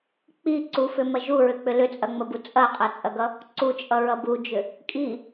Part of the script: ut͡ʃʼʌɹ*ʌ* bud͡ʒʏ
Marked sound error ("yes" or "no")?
no